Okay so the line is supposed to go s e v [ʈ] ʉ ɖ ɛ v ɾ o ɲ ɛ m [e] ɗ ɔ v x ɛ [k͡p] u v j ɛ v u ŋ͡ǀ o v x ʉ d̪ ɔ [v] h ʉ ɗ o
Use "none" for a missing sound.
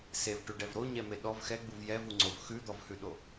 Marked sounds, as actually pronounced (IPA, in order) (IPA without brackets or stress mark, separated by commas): ʈ, e, ɡ͡b, v